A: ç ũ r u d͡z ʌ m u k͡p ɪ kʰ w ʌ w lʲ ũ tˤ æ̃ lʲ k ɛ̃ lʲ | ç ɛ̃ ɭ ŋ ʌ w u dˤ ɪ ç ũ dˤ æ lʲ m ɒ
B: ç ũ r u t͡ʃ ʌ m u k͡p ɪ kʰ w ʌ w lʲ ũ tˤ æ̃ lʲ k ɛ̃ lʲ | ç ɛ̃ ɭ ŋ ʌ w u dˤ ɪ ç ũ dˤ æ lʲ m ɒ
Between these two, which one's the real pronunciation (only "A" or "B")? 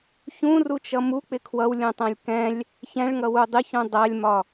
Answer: B